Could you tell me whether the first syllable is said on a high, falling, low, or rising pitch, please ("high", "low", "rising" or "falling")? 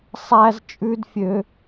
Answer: high